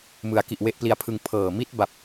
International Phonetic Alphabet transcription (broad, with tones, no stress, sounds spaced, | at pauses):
m ɯ˩˦ a̯ k i˨˩ ʔ w e˦˥ ʔ p l i˧ a̯ pʰ ɯ˧ ŋ pʰ ɤː˨˩ m i˦˥ t̚ b a˨˩ p̚